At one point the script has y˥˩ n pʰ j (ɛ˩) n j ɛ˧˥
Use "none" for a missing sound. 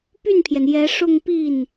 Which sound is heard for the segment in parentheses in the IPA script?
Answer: ɛ˩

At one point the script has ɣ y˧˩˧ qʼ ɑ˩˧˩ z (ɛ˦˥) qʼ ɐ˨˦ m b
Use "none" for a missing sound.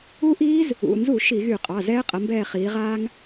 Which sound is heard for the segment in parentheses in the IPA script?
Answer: ɛː˦˥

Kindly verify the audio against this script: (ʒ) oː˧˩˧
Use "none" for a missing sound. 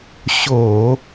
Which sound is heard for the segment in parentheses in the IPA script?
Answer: ɕ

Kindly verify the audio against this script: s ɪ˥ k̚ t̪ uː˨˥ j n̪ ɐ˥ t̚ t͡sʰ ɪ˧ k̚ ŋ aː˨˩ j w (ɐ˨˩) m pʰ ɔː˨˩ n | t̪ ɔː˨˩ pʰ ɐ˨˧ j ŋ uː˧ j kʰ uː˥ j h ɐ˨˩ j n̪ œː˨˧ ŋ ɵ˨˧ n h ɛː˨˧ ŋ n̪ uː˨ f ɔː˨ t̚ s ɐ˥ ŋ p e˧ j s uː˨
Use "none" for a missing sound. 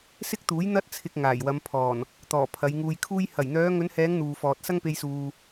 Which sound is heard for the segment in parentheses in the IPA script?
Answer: ɐ˨˧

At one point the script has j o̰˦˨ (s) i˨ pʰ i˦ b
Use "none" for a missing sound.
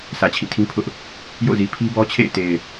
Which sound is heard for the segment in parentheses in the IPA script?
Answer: z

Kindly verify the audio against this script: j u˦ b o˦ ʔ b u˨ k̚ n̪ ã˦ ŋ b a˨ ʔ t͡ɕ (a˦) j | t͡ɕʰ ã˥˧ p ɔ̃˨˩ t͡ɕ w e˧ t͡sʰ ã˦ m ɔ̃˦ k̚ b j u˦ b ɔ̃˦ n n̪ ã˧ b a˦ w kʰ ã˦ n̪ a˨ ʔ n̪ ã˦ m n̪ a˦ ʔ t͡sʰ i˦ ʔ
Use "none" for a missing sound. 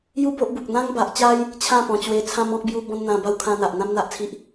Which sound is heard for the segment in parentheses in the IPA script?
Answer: a˦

